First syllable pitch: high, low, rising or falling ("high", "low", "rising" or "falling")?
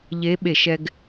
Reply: rising